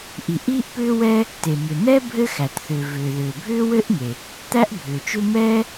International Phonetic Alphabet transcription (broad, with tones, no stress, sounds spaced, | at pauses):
ʔ i˩ ʔ iː˥ ʔ p ʏː˥ w ɛ˥ | t e˩ m ʏ˩ n̪ ɛ˥ bʱ ɘ˥ x æ˩ t θ ʏː˩ v ʏː˩ ð ʏː˩ bʱ ʏː˥ w ɘ˥ ʔ ŋ e˩ | t̪ æ˥ ʔ bʱ ʏː˩ t͡ʃ ʏ˥ m ɛː˥